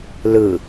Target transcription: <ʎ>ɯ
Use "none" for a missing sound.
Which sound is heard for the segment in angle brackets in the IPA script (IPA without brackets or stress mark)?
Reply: l